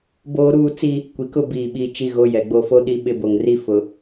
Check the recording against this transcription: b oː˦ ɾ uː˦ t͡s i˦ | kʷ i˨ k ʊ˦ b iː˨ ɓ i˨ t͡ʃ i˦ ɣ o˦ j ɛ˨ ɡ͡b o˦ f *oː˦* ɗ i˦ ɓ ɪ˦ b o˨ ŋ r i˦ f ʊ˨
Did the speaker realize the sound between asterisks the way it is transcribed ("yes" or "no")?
no